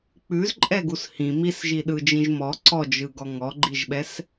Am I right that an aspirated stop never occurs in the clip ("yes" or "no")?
yes